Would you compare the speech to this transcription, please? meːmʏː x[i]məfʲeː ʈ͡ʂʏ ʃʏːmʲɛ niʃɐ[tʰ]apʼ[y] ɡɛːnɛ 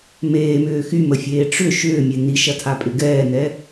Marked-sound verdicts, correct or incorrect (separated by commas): incorrect, correct, incorrect